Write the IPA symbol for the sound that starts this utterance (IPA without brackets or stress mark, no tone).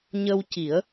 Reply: ɲ